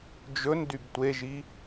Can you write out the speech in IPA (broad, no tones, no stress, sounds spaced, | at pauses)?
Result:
d͡ʒ ɵ n d y b tʷ e ʒ i